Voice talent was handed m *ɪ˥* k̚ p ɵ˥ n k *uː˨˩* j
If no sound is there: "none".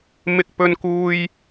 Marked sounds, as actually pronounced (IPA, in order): ɪ˥, uː˥

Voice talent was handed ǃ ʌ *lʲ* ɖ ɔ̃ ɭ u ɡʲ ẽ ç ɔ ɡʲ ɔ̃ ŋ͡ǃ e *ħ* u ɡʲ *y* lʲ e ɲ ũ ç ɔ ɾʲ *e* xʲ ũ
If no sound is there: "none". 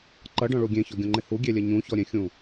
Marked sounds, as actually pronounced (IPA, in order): none, h, e, ẽ

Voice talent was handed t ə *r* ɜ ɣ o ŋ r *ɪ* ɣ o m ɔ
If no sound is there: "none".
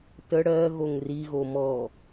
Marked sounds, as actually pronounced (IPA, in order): ɽ, i

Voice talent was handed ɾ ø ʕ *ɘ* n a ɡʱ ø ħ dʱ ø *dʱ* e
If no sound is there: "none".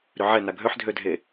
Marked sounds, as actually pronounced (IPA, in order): ɛ, dʱ

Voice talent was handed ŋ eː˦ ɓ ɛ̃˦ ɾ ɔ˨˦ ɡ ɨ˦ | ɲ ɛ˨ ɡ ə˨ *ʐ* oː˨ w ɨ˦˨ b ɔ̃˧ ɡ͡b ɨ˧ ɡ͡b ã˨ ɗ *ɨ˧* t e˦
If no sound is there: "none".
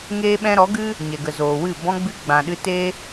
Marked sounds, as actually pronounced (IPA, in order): z, ɨ˧

